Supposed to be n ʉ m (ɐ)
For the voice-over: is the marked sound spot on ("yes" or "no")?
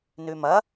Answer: yes